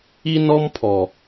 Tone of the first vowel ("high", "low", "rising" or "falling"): high